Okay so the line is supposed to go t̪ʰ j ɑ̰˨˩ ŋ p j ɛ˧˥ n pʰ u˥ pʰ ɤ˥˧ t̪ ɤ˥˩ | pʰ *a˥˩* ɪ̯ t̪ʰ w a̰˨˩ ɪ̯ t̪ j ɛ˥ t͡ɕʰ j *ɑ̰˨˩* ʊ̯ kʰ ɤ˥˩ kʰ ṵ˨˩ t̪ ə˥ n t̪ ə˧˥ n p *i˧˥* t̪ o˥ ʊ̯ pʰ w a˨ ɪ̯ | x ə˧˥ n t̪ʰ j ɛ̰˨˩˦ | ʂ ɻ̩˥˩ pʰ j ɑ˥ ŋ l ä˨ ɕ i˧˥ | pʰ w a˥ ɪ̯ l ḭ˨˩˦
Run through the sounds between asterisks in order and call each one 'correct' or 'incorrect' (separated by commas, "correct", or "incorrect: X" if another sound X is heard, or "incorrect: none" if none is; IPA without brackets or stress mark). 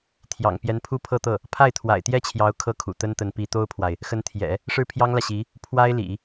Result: correct, incorrect: ɑ˧˥, correct